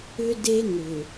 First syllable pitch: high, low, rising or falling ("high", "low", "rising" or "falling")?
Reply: high